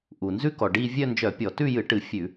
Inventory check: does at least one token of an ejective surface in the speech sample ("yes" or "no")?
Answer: no